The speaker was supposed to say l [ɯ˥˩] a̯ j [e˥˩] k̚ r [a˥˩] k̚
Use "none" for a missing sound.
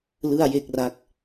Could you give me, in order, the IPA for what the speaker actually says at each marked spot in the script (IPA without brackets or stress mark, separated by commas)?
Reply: ɯ˥˩, e˥˩, a˥˩